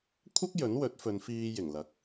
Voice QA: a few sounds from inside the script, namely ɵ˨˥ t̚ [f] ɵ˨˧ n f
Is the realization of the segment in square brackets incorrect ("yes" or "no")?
no